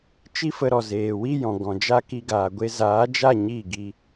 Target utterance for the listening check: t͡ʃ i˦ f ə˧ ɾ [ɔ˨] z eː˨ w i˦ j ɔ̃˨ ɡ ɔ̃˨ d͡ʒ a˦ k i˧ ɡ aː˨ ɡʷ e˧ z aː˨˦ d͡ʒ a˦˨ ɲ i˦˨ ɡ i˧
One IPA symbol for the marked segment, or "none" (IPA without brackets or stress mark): ɔ˨